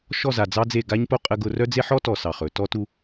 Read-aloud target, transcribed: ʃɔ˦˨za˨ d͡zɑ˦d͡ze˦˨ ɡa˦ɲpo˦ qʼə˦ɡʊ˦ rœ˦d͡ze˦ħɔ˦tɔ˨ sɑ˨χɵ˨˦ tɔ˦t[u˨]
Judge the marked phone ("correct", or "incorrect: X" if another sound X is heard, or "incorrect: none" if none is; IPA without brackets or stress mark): incorrect: u˦